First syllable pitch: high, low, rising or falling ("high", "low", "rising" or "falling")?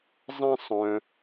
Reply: high